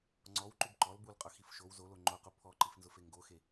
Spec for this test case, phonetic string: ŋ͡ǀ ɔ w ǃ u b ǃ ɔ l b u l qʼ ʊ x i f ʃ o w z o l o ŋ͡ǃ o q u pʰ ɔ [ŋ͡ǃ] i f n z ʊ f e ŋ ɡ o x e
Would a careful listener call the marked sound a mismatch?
yes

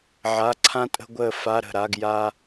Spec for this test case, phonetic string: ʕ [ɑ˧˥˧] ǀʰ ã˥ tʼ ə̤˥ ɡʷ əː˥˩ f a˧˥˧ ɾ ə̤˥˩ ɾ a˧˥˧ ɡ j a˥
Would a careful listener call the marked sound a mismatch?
yes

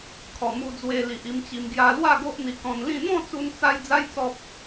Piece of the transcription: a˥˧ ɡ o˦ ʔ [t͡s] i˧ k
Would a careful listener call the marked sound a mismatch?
yes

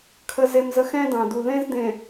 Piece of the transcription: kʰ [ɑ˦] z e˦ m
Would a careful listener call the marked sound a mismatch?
yes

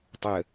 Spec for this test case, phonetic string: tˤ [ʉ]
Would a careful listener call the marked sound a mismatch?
yes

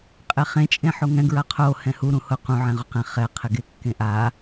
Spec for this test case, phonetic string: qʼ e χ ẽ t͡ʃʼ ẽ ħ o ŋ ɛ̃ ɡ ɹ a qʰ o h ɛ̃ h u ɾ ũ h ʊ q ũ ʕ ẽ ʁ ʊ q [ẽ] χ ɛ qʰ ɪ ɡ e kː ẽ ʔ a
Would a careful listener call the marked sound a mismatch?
yes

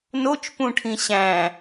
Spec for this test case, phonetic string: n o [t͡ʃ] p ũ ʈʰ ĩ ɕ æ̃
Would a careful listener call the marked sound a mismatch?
no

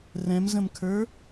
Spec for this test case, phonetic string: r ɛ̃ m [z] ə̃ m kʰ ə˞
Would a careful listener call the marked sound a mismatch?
no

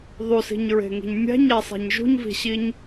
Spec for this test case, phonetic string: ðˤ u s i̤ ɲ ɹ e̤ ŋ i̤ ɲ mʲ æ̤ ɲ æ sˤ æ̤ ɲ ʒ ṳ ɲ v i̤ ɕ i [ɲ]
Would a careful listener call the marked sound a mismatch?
no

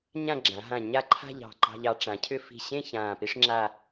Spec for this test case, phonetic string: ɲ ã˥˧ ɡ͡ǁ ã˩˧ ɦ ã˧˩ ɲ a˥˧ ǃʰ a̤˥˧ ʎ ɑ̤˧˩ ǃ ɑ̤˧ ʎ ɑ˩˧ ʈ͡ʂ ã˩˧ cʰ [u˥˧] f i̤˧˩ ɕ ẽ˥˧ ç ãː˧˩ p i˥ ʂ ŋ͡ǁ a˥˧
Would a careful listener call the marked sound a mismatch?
yes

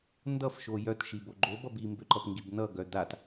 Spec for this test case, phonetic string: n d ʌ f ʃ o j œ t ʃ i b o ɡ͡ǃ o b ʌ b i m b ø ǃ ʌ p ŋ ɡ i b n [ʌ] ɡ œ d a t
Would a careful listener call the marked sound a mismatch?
no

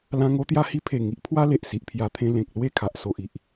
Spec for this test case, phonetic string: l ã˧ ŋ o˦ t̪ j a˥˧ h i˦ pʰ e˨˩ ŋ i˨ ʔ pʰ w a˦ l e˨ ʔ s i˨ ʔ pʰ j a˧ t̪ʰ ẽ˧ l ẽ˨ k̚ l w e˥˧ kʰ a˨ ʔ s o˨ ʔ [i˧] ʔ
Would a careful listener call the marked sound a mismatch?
yes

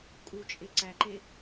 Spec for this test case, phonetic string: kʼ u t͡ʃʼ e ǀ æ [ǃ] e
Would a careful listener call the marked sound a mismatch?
no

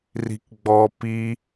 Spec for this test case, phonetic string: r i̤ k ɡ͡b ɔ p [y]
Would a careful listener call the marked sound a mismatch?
yes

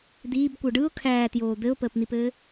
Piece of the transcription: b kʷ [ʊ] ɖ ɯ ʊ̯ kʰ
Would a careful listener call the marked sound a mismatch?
yes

